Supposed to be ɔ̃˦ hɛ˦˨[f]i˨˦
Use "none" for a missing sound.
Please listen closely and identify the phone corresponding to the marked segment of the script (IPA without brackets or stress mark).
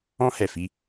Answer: f